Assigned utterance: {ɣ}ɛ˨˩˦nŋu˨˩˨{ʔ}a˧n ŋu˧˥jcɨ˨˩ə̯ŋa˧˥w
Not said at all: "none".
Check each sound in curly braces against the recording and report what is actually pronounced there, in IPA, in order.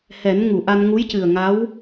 h, ʔ

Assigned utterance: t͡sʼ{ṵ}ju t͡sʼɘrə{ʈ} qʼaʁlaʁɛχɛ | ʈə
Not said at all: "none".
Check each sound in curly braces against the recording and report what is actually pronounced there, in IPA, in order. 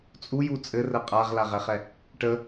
u, none

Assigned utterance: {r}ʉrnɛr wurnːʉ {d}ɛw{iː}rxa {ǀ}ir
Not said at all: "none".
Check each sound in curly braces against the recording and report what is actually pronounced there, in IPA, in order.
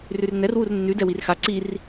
r, d, i, ǀ

